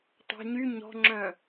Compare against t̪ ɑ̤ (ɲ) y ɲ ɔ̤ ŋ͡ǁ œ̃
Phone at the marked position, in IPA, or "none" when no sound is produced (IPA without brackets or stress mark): ɲ